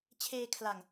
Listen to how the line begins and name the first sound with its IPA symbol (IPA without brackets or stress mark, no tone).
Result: t͡ɕʰ